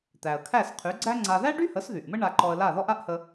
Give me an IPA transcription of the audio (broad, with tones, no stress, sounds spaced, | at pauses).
t̪ æ˩ ə̯ kʰ æ˥˩ s qʰ y˩˥ ɡ͡ǀ æ˥ ŋ͡ǀ a˧ ð æ˥ ɖ y˥ h ə˩˥ s ð y˩ ʔ m ə˥ ɳ a˧ ǃ ɔ˧ ə̯ l a˥˩ ð ɔ˥ ʔ a˥ ʔ h ə˧